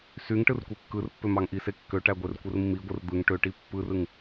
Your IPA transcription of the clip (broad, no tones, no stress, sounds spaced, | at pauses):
s y ŋ ʈ ɯ r kʷ e kː ɯ r pː ø m ɑ ŋ ʔ i s e kː ø ʈ æ ɡʷ e r kʷ ɯ r mː i ɡʷ ɯ r d̪ ɯ ŋ ʈ ø ʈ i pː ɯ r ɯ ŋ